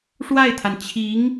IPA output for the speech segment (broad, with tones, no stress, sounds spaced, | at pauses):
ʂ w a˥˩ ɪ̯ t̪ʰ a˩ n t͡ɕʰ i˧˥ ŋ